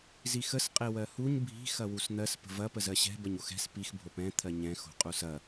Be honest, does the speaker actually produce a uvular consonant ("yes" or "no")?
yes